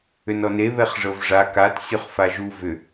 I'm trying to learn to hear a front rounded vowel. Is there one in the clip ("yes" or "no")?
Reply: yes